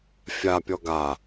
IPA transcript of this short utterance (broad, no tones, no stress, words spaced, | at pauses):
fʲapʲɔ ɡa